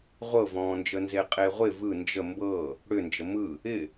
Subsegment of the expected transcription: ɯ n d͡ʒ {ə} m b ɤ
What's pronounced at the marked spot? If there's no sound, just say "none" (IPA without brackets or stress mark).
ə